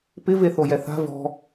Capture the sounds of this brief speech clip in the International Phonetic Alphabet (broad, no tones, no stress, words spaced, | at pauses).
pɪ veθojɛθa̤ vɔ̤